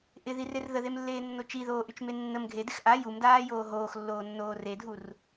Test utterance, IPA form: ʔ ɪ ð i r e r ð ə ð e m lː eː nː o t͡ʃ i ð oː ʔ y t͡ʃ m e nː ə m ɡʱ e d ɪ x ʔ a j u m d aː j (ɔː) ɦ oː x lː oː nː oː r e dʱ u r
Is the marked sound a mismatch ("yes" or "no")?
yes